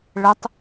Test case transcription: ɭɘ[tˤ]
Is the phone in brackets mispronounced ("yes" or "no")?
no